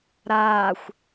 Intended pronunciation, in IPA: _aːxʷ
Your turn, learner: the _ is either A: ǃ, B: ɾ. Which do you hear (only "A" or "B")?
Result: B